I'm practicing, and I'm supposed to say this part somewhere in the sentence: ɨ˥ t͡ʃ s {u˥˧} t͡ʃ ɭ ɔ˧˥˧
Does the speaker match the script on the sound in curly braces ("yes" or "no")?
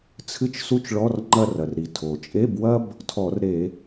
no